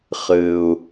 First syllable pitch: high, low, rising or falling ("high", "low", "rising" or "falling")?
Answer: low